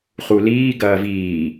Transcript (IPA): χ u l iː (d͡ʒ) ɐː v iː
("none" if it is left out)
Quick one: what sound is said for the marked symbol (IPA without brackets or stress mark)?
ɡ